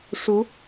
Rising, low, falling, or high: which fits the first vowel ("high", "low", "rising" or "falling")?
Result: rising